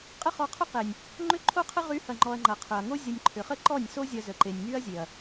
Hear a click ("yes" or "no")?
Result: yes